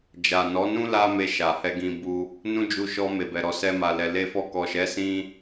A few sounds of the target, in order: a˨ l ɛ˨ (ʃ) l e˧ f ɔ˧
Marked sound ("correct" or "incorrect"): incorrect